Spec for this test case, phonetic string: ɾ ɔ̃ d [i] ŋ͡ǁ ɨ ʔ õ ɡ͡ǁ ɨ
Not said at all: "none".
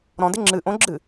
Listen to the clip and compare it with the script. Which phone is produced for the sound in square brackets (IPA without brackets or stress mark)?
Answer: ɪ